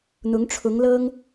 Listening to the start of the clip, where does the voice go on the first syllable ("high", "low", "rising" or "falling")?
rising